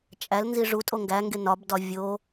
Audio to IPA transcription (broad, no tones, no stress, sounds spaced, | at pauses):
t͡ʃʼ æ l n z i ʐ u tʼ o ŋ ɡ æ ŋ ɡ e n ɒ b d ɒ vʲ o